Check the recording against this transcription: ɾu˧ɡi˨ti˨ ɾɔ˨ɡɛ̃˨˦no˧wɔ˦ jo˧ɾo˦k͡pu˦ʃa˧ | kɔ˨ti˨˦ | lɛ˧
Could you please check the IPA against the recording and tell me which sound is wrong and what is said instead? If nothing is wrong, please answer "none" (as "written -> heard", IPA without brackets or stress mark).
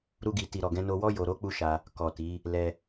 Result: none